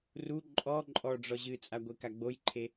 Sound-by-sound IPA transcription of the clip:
ru ǃʼɔ ǃʼɔɖ͡ʐɔ ʑɨt͡sʼaɡʷeka ɡ͡bojǃʰe

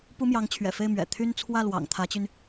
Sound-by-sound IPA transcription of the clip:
pu˥mjɑ˧˥ŋt͡ɕʰɥɛ̰˨˩fe˥˩ɪ̯ mɥɛ̰˨˩t̪ʰy˥n t͡sʰwä˥˩lwɑ̰˨˩ŋ t̪ʰä˧˥t͡ɕy˧n

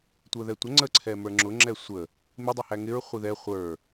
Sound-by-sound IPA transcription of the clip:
tʷə˞ðɛtʷə ŋ͡ǀəǀʰɛ mə˞ŋ͡ǁʊ ŋ͡ǁɛsʷə | mɪdˤɛ hæŋɪɹ χʷiðɛ χʷə˞

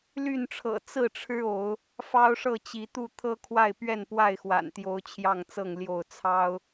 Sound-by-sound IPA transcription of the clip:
ly˥˨nʈ͡ʂʰɤ̰˨˩ t͡sɹ̩˥˨ʈ͡ʂʰɻ̩˦ o˨˦ʊ̯ | fɑ˦ʊ̯ʂɤ˥˨ t͡ɕi˨˦t̪u˥˨ t̪ʰɤ˦kʰwa˥˨ɪ̯ pɥɛ˥˨npwa˥˨ɪ̯xwa̰˨˩nt̪jo˨˦ʊ̯ t͡ɕʰjɑ˥˨ŋt͡sɤ˥˨ŋ ljo˥˨ʊ̯t͡sʰɑ˦ʊ̯

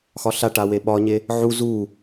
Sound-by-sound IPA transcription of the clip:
xɒɬaʈa weɓɒɲe | ʕu zu

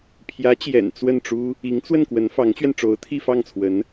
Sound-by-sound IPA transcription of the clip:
pʰjä˧˥t͡ɕjɛ̰˨˩n t͡swə˥˩nʈ͡ʂu˥ | i˧˥ŋt͡swə˥˩n kwə˧˥nfɑ˧˥ŋt͡ɕɥɛ˧n ʈ͡ʂo˧˥ʊ̯t̪ʰi˥˧fɑ˥˩ŋt͡sʰwə˧˥n

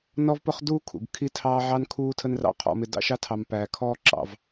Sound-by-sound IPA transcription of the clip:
nɔ˦vpʊ˦χduː˦ kʰṵ˨ɡkʰi˦ tʰɑː˦ʕɑ˦n kʰuː˦tʰə˦nrɑ̰˦˨ qʰɔ̰˨mɪ˨ dɑ̰˦ʃɑ˦tʰɑ˨mpæː˨ kʰɔː˦ǁɑ̰˨v

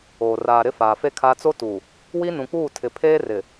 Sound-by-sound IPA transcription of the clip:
oː˨ raː˨ ɾɪ˦faː˨ fe˦kʰaː˦ t͡so˦tuː˨ | wi˦nũ˨k͡puː˦˨tʰɪ˨ pʰeː˦ rɪ˨

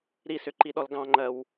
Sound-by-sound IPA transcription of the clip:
ɾisʏǃiɗɔl ɡɑ̃ŋ͡ǃɜw

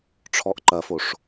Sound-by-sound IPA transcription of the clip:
ʈ͡ʂʰɔʔǃɐfoʂ

